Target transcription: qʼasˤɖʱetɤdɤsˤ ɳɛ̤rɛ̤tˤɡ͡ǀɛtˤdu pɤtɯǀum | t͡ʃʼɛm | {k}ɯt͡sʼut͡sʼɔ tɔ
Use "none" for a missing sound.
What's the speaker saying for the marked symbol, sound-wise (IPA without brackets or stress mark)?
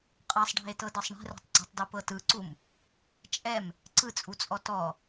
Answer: ǀ